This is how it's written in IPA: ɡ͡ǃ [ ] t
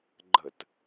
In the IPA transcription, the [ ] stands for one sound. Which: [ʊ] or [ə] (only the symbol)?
ə